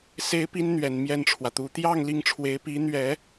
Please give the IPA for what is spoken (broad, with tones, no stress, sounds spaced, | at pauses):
s e˥ ɪ̯ p i˥ n n̪ ɥ ɛ˨˩ n m j ɛ˥˩ n ʈ͡ʂʰ w ä˩ t̪ u˧˥ t̪ j ɑ˥˧ ŋ l i˥˩ ŋ ʈ͡ʂʰ w e˧˥ ɪ̯ p i˧˥ n̪ ɥ ɛ˨˩˦